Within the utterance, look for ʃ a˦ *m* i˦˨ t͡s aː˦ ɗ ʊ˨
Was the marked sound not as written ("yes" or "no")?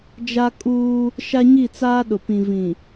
yes